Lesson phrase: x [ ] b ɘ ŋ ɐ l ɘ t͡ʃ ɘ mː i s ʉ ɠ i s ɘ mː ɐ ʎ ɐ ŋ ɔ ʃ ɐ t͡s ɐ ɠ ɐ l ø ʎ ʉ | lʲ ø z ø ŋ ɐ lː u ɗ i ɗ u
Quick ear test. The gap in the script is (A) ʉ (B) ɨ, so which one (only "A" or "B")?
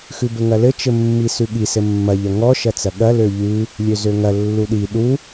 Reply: A